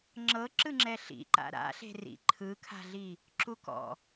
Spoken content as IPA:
ŋ͡ǁ ɤ ǁ ɯ ŋ͡ǁ ɛ ɬ ḭ ǃ a̰ ɾ a̰ ɬ e̤ r ḭ ǃʰ ɯ kʰ a̤ ɮ i | ǁ u k ɔ̰

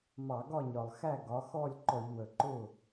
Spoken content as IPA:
m ɑ˧˩˧ ɡ ɒ˥˨ ɲ ɒ˨˩ lˠ x æ˥˨ ɡ ɒ˩˥ x ɔ˥˨ lʲ ǃ ɔ˧˩˧ ʎ w ə˨˩ ǃ ʊ˥˨

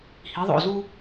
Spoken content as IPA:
h i˩˧ ðˤ o̰˧˩ z u˧

